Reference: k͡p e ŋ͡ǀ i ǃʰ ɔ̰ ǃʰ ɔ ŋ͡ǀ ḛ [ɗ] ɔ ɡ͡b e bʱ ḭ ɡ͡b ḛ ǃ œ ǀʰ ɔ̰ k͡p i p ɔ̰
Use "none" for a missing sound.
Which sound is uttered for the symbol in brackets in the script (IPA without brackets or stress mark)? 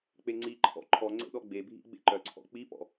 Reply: ɗ